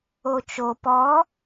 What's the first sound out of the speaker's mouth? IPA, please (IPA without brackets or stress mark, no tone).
o